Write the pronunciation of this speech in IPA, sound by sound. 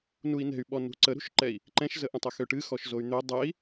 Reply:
n u i̯ n ɛ̤ y̯ ɓ ɔ n ṳ ǀ ə ɾ ṳ ʃ ǃ ɛ i̯ | ǃ ɛ̃ ʃ z ə ʔ ə̃ tˤ ə x ø ʈ ɨ x ɔ ʃ z o y̯ n̪ ø dˤ ɛ i̯

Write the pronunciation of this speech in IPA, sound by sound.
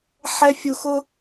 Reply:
ħ ɛ˦ fʲ u˧ x ʊ˧

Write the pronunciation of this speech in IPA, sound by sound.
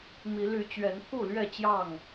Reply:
m i˨˦ l y˨˦ t͡ɕ ɥ ɛ˨˦ n pʰ u˥˨ l ɥ ɛ˥˨ t͡ɕ j ɑ˥˨ ŋ

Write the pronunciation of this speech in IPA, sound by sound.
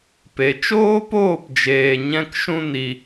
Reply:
p e˨ t͡ʃ oː˦ p oː˦˨ p d͡ʒ eː˨ ɲ ɛ̃˦ k ʃ ũ˦ n i˨

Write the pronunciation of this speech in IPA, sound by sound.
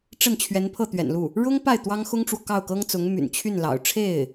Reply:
ʈ͡ʂ ə˥˩ n t͡ɕʰ ɥ ɛ˧˥ n pʰ ɤ˥˩ t̪ ɥ ɛ̰˨˩ n l u˥˩ | ɻ ʊ˥ ŋ p a˥˩ ɪ̯ t̪ w ɑ˥ ŋ x ʊ˥ ŋ ʈ͡ʂ w ɔ˨ k ɑ˥˩ ʊ̯ k ɤ˥ ŋ t͡s ʊ˧˥ ŋ m y̰˨˩ n t͡ɕʰ y˥˩ n l ɑ̰˨˩ ʊ̯ ʈ͡ʂʰ e˥˩ ɪ̯

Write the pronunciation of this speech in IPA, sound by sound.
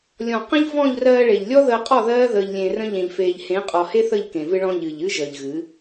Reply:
lʲ ɔ̃˨ q ə̃˦ ʎ v ɔ̃˦˨ ʎ r ɜː˧ ɭ e˨ ʎ lʲ ɔ˦ ð əː˧ qʼ ɔ˦˨ ð ɜː˦ ð əː˧ ʎ lʲ ẽ˧ r ə̃˦ ʎ ẽ˨ ʎ f eː˨ ʎ h ẽ˨˦ qʼ ɔ˨ h e˦ θ ə˦˨ ʎ k ẽ˨ v ɨ˧ ɭ ɔ̃˧ ʎ ɨ˨ ʎ ɨ˦ ʒ əː˨ ʎ ɣ ɨ˨˦

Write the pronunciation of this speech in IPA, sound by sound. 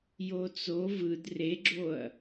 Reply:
j o t͡s o v ɯ d r e ɡ͡ǁ o ɐ̯

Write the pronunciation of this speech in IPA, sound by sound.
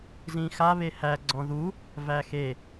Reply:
z ĩ x a β e h æ ɡ͡ǀ ɔ̃ ð u | v æ x e

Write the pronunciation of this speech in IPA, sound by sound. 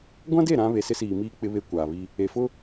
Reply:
ɡʷ ã˦ d e˦˨ ɾ ã˦ β e˨ s ɪ˦ s iː˨ m iː˦ k͡p ɪ˦ β e˦ kʷ aː˨ β i˦ | e˨ f ʊ˦

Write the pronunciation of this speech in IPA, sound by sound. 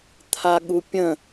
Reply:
t̪ʰ a ɠ u pʲ ə̃

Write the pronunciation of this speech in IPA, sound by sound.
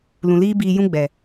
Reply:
l ũ˨ l iː˦ b iː˧ j ũ˦ ɡ͡b ɛ˨

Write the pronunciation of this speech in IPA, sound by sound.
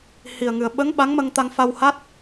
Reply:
h i˨˩ ə̯ ŋ ɨ˨˩ ə̯ ɓ ə˧˥ ŋ ɓ a˧˥ ŋ m ə˧ ŋ t̪ a˧ ŋ f a˧ w h a˦˥ t̚

